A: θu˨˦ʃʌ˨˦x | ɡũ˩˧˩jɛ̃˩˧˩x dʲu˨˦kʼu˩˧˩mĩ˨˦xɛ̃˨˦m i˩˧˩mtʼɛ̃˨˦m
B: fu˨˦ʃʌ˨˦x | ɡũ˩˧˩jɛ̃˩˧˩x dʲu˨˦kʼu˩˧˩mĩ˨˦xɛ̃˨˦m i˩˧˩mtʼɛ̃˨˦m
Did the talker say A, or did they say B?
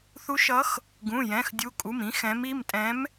A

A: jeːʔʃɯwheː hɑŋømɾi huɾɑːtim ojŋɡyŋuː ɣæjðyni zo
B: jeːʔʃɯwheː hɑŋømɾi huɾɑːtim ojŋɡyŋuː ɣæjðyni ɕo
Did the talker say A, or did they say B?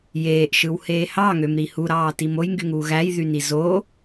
A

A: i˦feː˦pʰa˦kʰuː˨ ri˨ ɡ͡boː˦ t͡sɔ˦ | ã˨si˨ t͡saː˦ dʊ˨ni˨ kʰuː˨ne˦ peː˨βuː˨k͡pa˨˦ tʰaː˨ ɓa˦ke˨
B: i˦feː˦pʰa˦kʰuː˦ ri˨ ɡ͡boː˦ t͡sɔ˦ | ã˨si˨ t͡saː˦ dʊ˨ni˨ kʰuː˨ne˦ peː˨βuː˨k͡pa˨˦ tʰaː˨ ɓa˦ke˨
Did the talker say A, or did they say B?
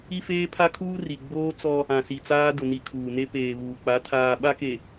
B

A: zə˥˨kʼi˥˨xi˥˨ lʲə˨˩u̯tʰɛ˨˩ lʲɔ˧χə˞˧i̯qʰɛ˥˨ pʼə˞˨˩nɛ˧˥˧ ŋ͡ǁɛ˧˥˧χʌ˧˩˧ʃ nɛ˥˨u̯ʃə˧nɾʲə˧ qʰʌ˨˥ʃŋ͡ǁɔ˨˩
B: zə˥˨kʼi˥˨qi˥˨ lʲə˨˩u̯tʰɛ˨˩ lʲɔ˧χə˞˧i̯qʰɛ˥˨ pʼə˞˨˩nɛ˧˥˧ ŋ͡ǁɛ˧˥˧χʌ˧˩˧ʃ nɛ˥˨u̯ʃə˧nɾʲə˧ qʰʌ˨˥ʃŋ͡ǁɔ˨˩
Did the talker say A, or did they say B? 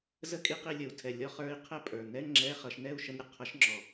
B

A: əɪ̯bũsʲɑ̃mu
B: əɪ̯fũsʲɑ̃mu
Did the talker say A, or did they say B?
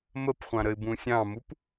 A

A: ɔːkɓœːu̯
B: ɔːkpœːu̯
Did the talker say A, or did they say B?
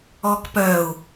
B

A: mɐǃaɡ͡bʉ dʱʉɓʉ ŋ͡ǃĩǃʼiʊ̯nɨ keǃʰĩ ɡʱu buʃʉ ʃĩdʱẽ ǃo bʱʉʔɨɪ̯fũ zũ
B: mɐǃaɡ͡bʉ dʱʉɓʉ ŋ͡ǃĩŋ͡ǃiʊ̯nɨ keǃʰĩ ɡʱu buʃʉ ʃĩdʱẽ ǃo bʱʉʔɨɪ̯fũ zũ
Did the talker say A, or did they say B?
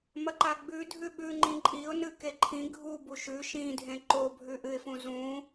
A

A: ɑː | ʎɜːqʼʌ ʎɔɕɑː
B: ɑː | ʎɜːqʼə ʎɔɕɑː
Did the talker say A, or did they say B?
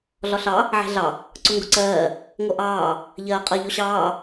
A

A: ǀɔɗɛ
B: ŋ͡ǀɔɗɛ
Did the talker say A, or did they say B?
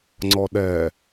B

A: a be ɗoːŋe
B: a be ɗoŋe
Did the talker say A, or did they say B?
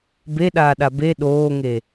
A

